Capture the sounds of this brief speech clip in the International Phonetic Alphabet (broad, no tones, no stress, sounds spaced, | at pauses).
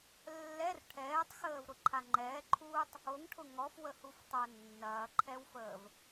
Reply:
lː ɛ r ʈʰ ɛː tˤ x əː v ɾ ʊ ǃʰ a ŋ͡ǃ ɛː ǃʰ uː tˤ | o ŋ ʈʰ ʊ ŋ ɔ f w ə h u f tˤ o nː ɐː ǃʰ ɛ w f əː v